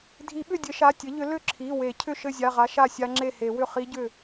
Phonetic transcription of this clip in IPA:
dʱ i˨˩˦ ɓ ʏ˥˩ dʲ ɘ˨˩˦ ʃ a˩˧˩ tʲ ɘ˩˥ ʎ ʏ˩˥ l ʏ˥˩ ǁʰ i˩˧˩ w e˨˩˦ cʰ ʏ˥˩ ʃ ɘ˥˩ zʲ a˩˧˩ ʁ a˩˥ ʃ a˥˩ sʲ a˦˥ ŋ͡ǁ e˥˩ h e˨˩˦ w ʏ˥˩ χ i˦˥ ɟ ʏ˥˩

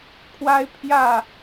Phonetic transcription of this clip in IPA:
kʰ w a˦ ɪ̯ pʰ j ä˥˨

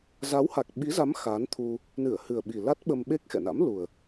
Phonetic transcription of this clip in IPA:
z a˨˦ w h a˨˩ k̚ ɓ i˨˦ z a˨˦ m x a˨˦ n t̪ʰ u˧ | n ɨ˧˩ ə̯ h ɨ˨˩ ə̯ ɓ i˨˩ l a˦˥ t̚ ɓ ə˧ m ɓ e˦˥ k̚ x ɛ̰˧˨ n a̰˧˥ m l u˨˩ ə̯

